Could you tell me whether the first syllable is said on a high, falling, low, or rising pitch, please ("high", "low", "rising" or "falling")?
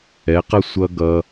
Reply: rising